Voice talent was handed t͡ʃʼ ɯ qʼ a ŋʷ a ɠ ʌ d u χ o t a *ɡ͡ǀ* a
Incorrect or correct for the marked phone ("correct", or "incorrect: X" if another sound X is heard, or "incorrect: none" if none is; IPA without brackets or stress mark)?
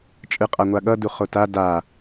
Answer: incorrect: d